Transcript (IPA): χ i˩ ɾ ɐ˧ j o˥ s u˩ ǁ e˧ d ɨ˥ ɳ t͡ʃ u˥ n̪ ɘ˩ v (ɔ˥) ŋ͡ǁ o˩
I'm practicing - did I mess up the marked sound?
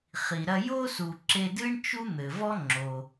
no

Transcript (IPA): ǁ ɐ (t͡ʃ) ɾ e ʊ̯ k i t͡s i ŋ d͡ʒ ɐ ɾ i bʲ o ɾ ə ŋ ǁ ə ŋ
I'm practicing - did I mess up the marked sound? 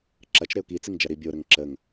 no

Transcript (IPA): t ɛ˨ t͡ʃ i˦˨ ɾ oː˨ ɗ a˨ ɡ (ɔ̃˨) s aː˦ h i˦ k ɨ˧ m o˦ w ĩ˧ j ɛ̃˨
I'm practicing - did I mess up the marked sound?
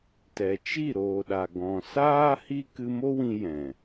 no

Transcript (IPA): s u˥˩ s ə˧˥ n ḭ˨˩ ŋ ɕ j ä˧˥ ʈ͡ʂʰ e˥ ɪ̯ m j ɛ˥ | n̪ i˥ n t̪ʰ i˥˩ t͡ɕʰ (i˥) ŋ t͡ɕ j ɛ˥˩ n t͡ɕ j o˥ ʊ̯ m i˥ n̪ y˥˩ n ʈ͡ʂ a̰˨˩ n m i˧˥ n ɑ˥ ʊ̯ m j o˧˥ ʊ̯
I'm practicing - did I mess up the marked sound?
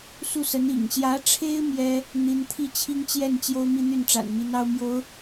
no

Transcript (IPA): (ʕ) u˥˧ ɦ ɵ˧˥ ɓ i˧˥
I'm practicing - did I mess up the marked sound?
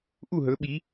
yes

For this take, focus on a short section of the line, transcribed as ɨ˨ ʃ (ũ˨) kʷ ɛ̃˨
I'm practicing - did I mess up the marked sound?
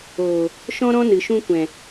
yes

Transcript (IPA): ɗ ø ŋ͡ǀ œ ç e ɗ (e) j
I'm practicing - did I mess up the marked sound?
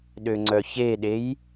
no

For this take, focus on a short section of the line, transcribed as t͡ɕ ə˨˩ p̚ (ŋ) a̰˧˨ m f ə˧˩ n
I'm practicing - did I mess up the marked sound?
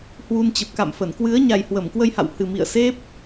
yes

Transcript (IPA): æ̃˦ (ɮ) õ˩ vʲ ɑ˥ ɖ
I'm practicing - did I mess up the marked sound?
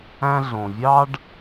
no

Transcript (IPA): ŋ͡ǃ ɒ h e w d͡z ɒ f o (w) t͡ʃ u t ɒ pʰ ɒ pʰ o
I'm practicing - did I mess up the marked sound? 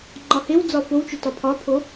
no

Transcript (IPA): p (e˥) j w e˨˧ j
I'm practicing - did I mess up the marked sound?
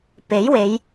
yes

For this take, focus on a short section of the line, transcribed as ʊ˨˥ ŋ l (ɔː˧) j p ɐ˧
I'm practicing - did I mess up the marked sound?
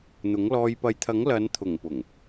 no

